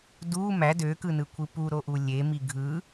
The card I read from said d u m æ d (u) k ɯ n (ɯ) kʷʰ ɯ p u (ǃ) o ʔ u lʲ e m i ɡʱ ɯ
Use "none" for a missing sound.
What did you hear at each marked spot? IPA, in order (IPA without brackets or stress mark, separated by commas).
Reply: ø, ɯ, ɾ